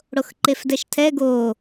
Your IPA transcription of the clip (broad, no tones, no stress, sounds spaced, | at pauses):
ɽ o x ǃ e f d ɛ ʃ tʰ ɛ ɡ o